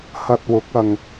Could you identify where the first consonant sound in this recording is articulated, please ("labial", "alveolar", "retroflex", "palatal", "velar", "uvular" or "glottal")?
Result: glottal